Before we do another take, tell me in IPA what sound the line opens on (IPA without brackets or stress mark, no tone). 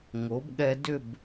ŋ